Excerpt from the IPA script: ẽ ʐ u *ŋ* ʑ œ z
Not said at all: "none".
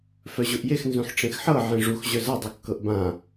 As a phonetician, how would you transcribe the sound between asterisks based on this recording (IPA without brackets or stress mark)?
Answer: x